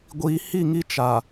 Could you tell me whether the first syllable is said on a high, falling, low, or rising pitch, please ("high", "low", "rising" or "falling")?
low